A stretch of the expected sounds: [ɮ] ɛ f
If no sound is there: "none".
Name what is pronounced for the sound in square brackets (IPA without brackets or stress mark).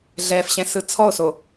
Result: ɮ